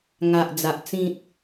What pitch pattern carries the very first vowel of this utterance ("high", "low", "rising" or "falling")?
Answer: low